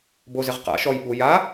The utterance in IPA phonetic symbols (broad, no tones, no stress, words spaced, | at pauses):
bozɪʁ qa̰ ʃɔj ɓu ja